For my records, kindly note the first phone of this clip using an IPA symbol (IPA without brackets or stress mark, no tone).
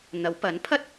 n̪